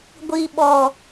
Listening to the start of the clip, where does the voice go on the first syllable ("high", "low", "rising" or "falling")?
low